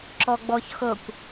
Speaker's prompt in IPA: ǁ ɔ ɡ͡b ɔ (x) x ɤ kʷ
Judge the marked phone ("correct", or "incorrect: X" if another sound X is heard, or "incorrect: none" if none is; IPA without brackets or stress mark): incorrect: ç